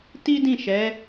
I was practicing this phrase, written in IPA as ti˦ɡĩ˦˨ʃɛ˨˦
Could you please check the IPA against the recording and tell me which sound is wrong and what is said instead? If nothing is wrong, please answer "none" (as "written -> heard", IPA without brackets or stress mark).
ɡ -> d